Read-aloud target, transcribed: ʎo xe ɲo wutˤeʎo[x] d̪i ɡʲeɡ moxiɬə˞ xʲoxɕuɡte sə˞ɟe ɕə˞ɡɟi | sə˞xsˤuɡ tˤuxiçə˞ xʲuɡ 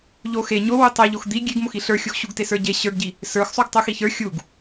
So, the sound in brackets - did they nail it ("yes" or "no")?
yes